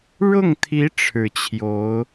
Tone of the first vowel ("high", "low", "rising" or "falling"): falling